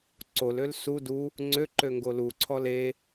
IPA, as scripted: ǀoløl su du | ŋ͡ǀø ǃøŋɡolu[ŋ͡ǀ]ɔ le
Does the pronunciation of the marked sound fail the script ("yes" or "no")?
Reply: yes